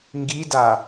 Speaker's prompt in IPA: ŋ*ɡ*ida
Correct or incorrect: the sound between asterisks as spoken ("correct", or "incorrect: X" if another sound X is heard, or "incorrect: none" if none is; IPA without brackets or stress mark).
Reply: correct